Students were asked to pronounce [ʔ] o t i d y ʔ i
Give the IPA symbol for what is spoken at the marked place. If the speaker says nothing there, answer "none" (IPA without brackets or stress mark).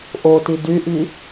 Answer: ʔ